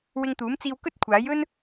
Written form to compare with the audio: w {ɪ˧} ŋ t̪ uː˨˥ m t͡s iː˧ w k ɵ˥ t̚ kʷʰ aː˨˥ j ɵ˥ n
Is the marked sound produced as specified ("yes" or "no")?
yes